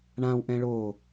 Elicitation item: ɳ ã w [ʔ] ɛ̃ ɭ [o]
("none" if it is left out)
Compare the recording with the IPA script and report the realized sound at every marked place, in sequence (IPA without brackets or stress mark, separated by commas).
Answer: ʔ, o